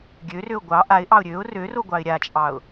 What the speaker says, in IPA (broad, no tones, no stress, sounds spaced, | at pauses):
ɡʲ ø r ø ʊ̯ ɡʷ ɑ ʔ a ɪ̯ ʔ ɑ ʊ̯ ɾʲ ø ʊ̯ r ø r o ɡʷ ɑ ɪ̯ ɾʲ a t͡ʃʼ ɑ ʊ̯